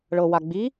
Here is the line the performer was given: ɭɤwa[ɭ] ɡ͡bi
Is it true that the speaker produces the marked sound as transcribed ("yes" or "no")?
no